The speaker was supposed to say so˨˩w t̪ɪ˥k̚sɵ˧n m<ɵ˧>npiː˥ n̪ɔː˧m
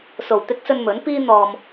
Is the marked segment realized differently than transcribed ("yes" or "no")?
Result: yes